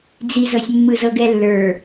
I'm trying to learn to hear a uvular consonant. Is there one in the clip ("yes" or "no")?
no